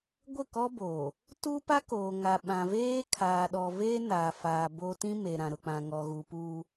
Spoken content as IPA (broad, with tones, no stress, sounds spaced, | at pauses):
ɡʷ ɪ˦˨ k ɔ˦ b oː˨ | t u˦ p a˦ k oː˨ ŋ a˨ ɓ ã˨ v eː˦ kʰ aː˨ ɗ ɔ˨ v eː˦ n aː˨ f aː˨ b o˦ t ĩ˦ m e˨ ɾ ã˨ ɾ ʊ˨ k͡p ã˨ ŋ ɔ˨ ɣ u˨ p uː˦